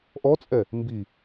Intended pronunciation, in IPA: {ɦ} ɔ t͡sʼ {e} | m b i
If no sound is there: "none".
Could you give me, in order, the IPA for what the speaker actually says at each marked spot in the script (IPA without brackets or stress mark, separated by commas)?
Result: ʔ, ɛ